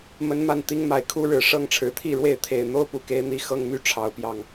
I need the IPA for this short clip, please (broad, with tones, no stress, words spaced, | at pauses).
mə˦nma˥˨n t̪i˦ŋma˨˩ɪ̯kʰu˦ ɻɻ̩˨˦ ʂɤ˦ŋʈ͡ʂʰɻ̩˨˩t̪ʰi˥˨ɻwe˥˨ɪ̯ t̪ʰe˨˩ɪ̯ n̪o˦ʊ̯pu˨˩ke˨˦ɪ̯ n̪i˨˩ xɤ˦ŋmy˦ ʈ͡ʂʰɑ˨˦ʊ̯pjɑ˨˩ŋ